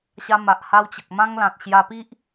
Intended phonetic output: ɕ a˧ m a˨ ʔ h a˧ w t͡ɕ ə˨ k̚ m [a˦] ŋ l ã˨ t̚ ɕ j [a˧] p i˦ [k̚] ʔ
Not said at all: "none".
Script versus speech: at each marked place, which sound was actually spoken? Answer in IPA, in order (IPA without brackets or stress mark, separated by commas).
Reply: ã˦, a˧, none